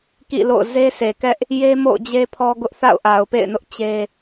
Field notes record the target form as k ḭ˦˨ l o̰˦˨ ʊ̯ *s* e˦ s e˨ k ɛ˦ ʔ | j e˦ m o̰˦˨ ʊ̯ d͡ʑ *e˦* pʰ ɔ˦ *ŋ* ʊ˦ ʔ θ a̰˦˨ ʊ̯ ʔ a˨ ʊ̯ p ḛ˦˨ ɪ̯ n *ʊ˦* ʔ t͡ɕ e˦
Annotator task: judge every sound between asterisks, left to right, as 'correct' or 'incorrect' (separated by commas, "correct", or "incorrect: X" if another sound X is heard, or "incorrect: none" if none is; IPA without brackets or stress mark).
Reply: incorrect: z, correct, incorrect: ɡ, correct